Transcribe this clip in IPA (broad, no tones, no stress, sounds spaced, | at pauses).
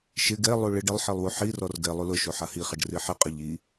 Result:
ʃ ɪ ɡ ɛ lˠ u ɭ ɪ ɖ ɪ lˠ ħ i lˠ w u ħ i r ɔ r ɡ ɛ lˠ u l ʊ ʃ o ħ a h i χ ɛ ɖ r i ħ ɪ qʼ ɪ ʎ i